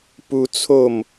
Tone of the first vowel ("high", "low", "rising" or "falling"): high